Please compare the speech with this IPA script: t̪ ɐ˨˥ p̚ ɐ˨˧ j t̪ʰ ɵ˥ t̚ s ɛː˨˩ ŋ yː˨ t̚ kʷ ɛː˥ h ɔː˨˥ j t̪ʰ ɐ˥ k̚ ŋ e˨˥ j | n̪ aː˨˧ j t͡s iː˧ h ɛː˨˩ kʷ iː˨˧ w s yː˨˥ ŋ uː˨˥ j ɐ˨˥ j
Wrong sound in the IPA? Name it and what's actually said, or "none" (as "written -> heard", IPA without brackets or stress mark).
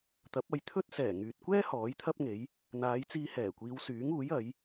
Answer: k̚ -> p̚